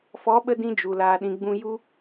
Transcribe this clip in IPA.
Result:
fɔ˨˦ɓə˧dĩ˧d͡ʒu˨ laː˨ɗĩ˨ ɡ͡bũ˧ju˦

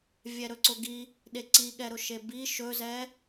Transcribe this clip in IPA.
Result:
vʲɛɾɵǀʊɡi | ɗeǀiɠɛɾʊ ʃebi ʃɵzɛ

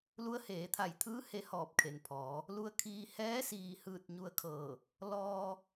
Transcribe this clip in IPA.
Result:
lu˧˥ə̯ heː˩˧t̪ʰa˧˩jt̪ʰɯː˧˥ he˧˥hɔː˧˩p̚kʰe˩npʰɔː˩˧ | lu˧ə̯kʰiː˧ hɛː˧˥siː˧˩hɯː˧˩t̚ ɲu˧ə̯kʰɤː˧˩ | lɔː˧

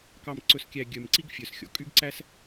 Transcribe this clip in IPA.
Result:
kɑ˨mǀɵ˨skʲæ˨ ɡʲœ˨mǀi˦ɡ fʲœ˨sxʲɔ̰˨ kʼy˦ɡǀæ˦s

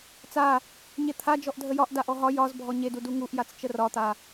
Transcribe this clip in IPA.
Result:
t͡sa | ɲet̪ʰa d͡ʒɔʔdʱəjɒʔ daʔɔɦɒ jɒz bʱɔɲedu duŋuʔjat͡s t͡ʃərɒt̪a

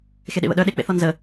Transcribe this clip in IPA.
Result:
xeɗḛβə̰ɗœ ɗek͡pḛ θɔnzə

